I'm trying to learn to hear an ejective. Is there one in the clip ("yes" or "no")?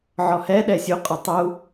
yes